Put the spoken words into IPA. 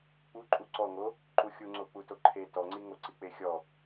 k͡p u ǃʼ u ǀ ɔ ŋ o | ǃ u xʲ u ŋ͡ǀ o k͡p u t o ǃʰ e t ɔ ŋ͡ǀ i ŋ o ǀ i k͡p e xʲ ɔ

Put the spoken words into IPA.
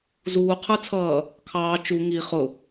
z uː qʰ ə˞ t͡sʰ ʌː | kʰ ɑː t͡ʃ u ŋ i χ ʊ

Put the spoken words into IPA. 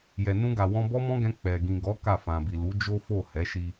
j ɛ˨ n ũ˧ ɡ a˨ w ɔ̃˧ b ɔ˦ m ɔ̃˦ ɡ ɛ̃˧ k͡p ɛ˨ ɡ ĩ˨ ɡ ɔ˨˦ k a˦˨ f ã˨ b i˨ l u˨˦ d͡ʒ o˦ f o˦˨ h ɛ˨˦ ʃ i˧

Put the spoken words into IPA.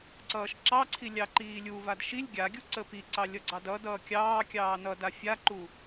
ǀ ʌː ʃ ǁ ɑ ǀʰ i lʲ ɑ ǃ iː lʲ u v a d ʃ i lʲ ɡʲ a ɡʲ u ǀ ə p i ǀ ɑ lʲ ʌ ɡ͡ǀ ɑ d ʌ d ʌː kʲ ɑː kʲ ɑː n ʌ d a fʲ a ǃ u

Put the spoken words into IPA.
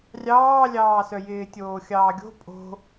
rʲ ɑː lʲ ɑː s œ j ɪː tʲ oː xʲ ɑː ɡʲ o̤ pʼ o̤

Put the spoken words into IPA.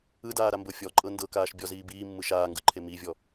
ɯ d aː ɾ a m b ɤ fʲ ɔ ǃʼ ɤ n d ɤ k aː ʃ bʲ ɔ z iː b iː mː ɯ ʃ aː ŋ ɡ ɯ ǃʰ e m i vʲ ɔ

